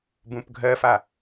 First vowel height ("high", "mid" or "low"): high